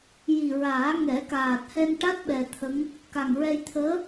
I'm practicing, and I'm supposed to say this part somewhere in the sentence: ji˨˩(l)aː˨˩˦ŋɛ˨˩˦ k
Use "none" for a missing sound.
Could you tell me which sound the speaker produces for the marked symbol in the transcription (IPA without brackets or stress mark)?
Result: ɹ